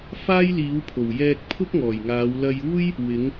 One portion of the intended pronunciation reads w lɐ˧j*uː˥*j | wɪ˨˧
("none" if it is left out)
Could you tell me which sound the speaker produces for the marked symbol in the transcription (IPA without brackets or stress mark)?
uː˥